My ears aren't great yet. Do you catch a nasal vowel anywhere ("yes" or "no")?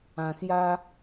yes